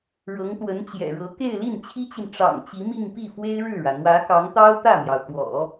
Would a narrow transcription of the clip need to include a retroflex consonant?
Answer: yes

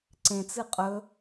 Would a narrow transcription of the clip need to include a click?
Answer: yes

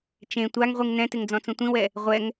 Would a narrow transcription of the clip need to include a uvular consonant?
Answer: yes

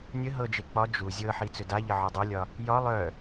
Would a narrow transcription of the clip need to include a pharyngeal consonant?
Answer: yes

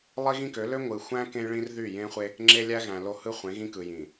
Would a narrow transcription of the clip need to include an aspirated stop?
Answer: no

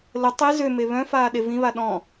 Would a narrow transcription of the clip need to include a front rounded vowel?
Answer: yes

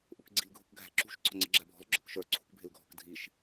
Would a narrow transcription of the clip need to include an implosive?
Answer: no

